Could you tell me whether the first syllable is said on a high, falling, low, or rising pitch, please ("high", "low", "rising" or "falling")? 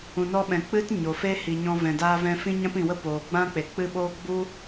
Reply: low